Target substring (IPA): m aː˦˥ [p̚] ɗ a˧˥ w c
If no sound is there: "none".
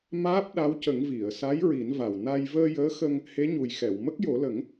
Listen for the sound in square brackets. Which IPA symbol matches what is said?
p̚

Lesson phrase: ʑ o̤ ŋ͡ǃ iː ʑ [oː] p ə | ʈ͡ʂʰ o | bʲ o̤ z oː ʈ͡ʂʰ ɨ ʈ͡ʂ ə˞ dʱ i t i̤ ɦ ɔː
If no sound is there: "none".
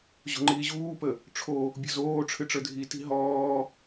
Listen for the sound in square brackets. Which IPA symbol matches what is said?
uː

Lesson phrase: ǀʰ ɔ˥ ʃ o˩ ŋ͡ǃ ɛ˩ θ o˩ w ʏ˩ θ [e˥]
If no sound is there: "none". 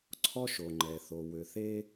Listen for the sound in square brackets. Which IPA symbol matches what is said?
e˥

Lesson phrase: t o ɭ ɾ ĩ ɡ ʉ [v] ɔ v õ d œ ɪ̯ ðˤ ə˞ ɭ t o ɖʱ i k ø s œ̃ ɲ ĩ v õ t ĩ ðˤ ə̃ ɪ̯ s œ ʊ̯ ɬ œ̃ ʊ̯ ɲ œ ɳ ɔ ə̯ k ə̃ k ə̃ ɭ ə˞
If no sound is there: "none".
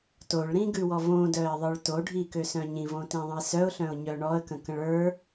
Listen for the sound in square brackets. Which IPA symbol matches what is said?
w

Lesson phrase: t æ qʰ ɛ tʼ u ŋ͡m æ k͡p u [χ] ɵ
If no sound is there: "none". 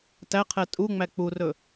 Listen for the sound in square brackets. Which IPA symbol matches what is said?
r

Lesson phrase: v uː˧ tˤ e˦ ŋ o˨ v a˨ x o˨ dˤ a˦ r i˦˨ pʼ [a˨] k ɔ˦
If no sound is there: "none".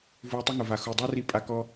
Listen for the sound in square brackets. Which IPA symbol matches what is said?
a˧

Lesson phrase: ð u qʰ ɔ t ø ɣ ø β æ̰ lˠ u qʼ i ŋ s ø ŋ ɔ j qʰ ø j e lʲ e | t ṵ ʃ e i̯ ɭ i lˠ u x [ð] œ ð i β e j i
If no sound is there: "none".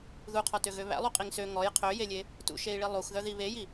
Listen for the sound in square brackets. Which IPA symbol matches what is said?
ð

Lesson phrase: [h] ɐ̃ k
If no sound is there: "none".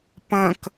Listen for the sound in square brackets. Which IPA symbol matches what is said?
p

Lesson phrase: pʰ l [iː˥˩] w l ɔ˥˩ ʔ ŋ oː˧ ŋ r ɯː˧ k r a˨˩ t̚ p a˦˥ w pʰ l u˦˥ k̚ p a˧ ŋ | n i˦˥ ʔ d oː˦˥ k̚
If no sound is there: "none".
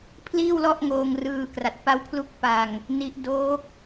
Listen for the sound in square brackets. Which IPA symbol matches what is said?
iː˥˩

